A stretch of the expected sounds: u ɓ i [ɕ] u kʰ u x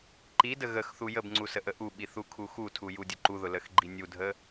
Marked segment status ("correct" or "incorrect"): incorrect